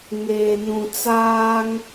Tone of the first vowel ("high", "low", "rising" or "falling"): low